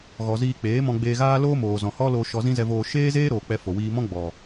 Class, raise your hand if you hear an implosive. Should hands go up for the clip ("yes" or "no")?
no